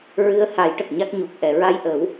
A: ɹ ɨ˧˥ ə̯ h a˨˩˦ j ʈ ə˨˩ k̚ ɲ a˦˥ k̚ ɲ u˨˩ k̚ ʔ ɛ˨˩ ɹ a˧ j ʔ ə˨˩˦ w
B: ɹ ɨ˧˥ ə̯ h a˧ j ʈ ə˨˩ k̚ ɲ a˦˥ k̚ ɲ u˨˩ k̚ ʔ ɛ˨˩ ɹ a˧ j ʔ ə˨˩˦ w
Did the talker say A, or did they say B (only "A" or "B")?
A